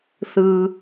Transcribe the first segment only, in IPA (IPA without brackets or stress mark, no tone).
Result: θ